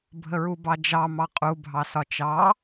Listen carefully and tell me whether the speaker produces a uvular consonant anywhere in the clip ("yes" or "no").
yes